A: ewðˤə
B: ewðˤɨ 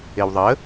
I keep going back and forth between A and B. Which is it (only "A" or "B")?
A